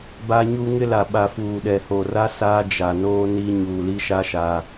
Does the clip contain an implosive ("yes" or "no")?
yes